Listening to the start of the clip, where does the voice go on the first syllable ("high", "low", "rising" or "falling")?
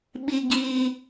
low